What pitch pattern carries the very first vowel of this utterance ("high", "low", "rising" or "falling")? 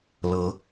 rising